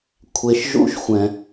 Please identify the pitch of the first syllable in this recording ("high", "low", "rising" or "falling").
low